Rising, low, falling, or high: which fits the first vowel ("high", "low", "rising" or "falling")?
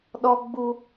high